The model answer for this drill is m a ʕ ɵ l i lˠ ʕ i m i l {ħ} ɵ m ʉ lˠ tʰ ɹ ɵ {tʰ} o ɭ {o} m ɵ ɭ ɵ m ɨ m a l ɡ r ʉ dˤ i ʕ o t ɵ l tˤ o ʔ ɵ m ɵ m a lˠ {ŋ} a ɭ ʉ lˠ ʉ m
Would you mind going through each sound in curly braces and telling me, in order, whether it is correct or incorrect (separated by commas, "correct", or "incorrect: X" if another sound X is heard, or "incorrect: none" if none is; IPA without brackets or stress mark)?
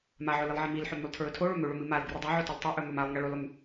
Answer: correct, correct, incorrect: ɵ, correct